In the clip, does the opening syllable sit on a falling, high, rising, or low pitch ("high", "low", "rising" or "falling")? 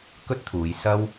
high